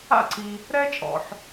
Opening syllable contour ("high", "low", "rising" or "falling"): falling